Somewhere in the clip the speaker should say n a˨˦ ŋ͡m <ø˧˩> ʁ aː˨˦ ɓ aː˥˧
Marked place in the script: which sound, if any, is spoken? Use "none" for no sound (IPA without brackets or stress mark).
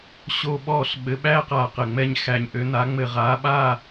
ɘ˧˩